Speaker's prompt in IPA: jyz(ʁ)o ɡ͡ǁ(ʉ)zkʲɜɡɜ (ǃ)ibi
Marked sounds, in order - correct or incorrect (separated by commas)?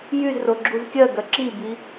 incorrect, incorrect, incorrect